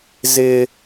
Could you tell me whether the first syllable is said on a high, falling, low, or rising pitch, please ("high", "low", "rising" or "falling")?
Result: high